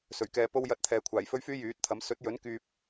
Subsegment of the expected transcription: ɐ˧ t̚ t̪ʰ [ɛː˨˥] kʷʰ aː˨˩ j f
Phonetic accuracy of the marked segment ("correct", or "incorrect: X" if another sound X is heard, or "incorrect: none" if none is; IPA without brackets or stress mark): incorrect: ɛː˨